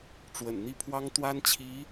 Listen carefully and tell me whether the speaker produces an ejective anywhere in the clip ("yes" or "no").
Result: no